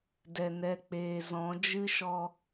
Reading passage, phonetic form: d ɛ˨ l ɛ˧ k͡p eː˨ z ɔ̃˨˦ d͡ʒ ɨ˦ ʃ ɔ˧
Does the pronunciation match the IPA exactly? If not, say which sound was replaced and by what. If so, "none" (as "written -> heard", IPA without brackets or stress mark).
l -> n